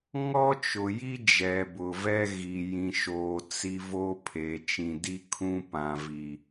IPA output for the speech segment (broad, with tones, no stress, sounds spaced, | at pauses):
ŋ ɔ˦ t͡ʃ ʊ˨ j i˦ d͡ʒ ɛ˨ b ʊ˨ v ɛ˦ ɣ i˨ j ĩ˨ ʃ oː˨ t͡s i˦ v o˦ pʰ e˨ t͡ʃ ĩ˨ d i˦ kʰ ũ˦ p ã˨ v i˨